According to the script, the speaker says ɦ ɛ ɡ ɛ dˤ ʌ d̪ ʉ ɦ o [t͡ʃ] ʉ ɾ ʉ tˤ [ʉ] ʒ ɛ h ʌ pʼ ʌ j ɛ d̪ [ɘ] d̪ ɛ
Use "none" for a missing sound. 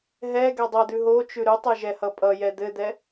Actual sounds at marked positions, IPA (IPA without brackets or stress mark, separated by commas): t͡ʃ, ʉ, ɘ